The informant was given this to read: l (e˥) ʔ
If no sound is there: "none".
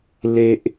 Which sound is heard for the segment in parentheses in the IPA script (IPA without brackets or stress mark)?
e˧